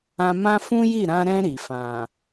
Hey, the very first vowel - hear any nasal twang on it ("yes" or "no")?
yes